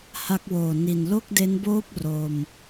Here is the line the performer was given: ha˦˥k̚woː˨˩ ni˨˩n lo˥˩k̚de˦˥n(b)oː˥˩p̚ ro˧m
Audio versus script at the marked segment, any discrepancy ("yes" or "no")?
no